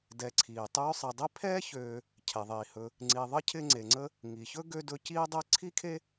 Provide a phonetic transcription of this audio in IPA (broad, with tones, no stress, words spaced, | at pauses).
dɛ˨ǀʰiː˩ tˤøː˦sˤɪː˨dˤi˥ pʰɛː˥çøː˨ | cʰɛ˩ðˤiː˩hɵ˨ | ŋ͡ǀi˨ðˤə˥cʰɪ˦ ŋ͡ǀe˩ŋ͡ǀə˦ | ŋi˩çɵ˥ ɡø˦ dɵ˦ciː˥dˤɛ˥ ǀʰi˥kʰe˥